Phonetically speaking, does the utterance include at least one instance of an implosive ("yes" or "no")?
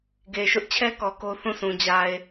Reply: no